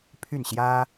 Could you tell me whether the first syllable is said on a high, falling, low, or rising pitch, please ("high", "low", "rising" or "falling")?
falling